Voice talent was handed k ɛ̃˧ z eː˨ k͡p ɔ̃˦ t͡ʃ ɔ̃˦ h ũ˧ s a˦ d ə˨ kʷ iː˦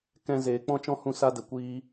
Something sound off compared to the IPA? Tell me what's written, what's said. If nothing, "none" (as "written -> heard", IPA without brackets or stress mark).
none